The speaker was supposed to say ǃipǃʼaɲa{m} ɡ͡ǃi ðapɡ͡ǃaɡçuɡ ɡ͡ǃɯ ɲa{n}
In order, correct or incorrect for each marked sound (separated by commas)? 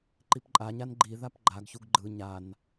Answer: incorrect, correct